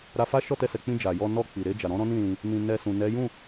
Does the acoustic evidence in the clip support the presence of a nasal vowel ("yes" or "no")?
yes